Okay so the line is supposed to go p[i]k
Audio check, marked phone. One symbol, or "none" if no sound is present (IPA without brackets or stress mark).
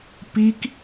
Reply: i